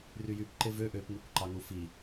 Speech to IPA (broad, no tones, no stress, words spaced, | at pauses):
ryjyp ǃevø ʔøp ŋikʷǃɑŋufi